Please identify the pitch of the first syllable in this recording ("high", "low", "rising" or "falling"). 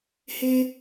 high